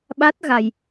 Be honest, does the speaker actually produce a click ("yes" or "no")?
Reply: no